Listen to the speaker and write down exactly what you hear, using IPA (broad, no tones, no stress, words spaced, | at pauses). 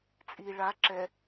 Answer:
t͡sʼi ɭa ǁɛ